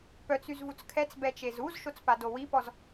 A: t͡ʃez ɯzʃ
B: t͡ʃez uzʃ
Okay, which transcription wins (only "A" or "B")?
B